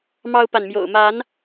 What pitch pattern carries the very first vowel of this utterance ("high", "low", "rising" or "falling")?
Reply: high